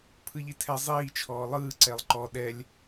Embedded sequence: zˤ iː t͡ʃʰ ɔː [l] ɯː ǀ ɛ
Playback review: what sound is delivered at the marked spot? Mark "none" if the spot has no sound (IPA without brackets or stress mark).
lˠ